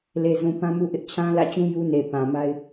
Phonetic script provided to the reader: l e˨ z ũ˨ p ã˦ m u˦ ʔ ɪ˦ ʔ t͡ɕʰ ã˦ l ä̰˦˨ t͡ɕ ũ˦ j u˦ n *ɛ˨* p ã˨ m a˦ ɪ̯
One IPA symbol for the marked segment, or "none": e˨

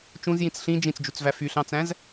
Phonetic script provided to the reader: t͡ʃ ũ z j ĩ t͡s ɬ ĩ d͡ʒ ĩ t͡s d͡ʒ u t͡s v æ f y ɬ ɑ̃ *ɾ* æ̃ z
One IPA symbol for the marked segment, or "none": t͡s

